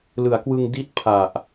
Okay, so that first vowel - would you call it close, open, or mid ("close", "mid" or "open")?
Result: close